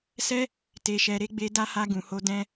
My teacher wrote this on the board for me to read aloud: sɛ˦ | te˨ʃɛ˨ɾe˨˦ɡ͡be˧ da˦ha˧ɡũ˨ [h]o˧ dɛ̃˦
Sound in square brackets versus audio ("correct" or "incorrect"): correct